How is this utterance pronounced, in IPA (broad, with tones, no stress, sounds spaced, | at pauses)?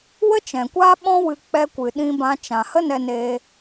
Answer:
w ə˦ t͡ʃ ɛ̃˨ kʷ aː˦ ɓ ɔ̃˧ w ɨ˨ k͡p ɛ˧ kʷ ɨ˨ ɗ ĩ˧ b ã˧ t͡ʃ ã˨ h ə˦ n ɛ˧ n eː˧